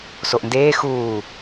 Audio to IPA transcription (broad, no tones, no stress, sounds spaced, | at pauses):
s o ʔ n d eː x uː